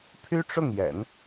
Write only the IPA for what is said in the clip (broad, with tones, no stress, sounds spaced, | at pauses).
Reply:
pʰ y˥ ʈ͡ʂ ʊ˥˩ ŋ j ɛ̰˨˩˦ n